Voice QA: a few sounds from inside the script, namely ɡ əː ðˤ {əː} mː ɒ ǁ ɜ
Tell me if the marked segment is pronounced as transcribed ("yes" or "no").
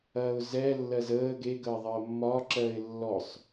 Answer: yes